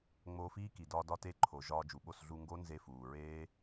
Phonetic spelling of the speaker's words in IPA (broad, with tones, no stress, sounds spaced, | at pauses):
ŋ͡m oː˧ f iː˦ k i˨ d ɒː˧ d ɒ˧ t e˧ ǃʰ o˨ ʒ ɒː˧ d͡ʒ u˨ ɓ o˦˨ s ɮ u˧ ŋ ɡ o˦ n z e˧ f uː˨ ɹ eː˦